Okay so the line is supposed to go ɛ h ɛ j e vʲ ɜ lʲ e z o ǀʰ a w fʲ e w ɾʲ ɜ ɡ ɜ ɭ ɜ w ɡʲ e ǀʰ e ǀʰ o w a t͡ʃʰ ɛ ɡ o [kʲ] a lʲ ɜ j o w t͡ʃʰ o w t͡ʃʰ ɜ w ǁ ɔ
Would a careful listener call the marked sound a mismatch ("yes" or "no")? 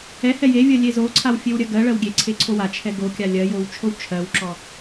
no